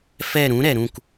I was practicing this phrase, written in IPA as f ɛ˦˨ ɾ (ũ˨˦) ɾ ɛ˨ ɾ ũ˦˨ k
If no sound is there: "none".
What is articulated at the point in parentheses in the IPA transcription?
ũ˨˦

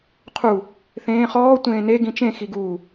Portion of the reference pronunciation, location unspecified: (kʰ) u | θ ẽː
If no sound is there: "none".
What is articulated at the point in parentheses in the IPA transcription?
qʰ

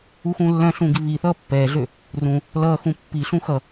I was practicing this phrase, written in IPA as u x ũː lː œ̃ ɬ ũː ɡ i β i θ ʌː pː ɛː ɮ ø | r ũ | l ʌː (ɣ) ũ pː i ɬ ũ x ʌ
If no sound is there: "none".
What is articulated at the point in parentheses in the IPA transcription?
x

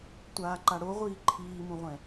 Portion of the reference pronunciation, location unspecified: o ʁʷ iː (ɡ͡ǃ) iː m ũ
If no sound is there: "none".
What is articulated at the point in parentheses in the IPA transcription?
ǃʰ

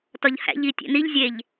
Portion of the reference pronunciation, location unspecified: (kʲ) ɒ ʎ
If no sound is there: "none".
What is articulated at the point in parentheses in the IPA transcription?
t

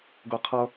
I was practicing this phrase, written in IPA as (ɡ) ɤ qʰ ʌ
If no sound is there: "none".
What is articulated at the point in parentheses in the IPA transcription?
ɡ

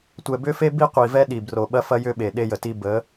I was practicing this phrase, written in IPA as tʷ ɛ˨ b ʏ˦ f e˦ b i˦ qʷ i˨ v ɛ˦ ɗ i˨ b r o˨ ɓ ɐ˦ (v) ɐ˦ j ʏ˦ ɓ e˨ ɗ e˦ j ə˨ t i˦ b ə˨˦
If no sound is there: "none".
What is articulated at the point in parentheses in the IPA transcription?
f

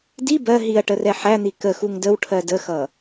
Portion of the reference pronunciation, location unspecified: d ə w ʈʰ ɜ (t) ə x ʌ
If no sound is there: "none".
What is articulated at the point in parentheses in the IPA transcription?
d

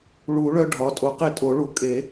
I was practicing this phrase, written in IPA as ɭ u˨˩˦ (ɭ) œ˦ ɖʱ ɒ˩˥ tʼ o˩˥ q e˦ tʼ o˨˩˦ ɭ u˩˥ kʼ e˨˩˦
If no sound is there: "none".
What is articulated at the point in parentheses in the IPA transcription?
ɭ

